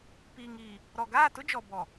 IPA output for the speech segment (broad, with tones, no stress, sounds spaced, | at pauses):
p iː˨ ŋ iː˨ | ɾ ɔ˨ ɡ aː˦˨ t ʊ˦ d͡ʒ ɔ˨ b ɔ˨